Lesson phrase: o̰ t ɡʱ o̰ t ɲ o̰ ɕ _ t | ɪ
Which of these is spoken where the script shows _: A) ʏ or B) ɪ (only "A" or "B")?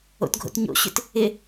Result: A